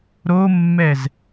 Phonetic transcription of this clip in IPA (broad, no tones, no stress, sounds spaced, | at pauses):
ɾ o mː ɛ z